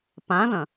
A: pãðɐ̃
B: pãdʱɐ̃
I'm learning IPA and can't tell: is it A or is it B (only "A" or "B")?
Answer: A